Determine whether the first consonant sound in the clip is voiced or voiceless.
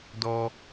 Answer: voiced